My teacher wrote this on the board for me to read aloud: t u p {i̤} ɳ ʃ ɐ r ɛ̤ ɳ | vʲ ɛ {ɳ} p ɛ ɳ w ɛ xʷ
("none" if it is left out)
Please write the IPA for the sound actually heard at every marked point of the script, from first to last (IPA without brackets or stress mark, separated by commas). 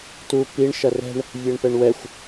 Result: i, ɳ